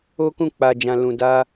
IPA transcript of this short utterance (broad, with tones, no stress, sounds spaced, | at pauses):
o˦ k ũ˦˨ k͡p a˨ d͡ʒ ã˨ l ũ˨ d a˧